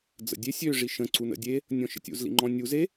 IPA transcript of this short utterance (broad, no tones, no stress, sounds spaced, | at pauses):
d͡z ə̰ dʲ e sʲ ø ʐ i ʃ ə̃ ǀ u n ə̰ dʲ e | nʲ ɔ̃ ʃ ə̰ tʲ ṵ z l ḭ ŋ͡ǃ ɔ̃ nʲ u z e